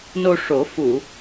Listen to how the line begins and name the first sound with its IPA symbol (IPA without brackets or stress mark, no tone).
n